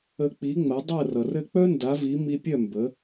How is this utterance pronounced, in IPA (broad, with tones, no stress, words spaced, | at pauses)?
ə˧k͡pi˩˥ŋ͡mɜ˩˥ dˤɜ˥˩rʌ˩rɘ˥˩ k͡pœ˥nda˩˥vi˩˥ mi˧pʲœ˥˩ mbə˩˥